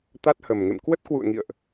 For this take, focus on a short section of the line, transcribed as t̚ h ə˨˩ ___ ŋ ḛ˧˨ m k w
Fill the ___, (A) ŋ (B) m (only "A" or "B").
B